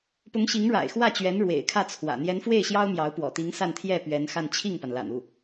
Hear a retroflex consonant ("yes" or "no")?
yes